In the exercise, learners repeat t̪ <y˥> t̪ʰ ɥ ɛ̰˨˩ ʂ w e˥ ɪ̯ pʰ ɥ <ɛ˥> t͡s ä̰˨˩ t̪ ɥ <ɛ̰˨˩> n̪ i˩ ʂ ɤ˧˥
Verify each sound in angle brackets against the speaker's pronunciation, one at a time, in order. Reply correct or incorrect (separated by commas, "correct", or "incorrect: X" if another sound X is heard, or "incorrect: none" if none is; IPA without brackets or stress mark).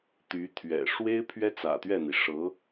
incorrect: y˧˥, correct, incorrect: ɛ˥˩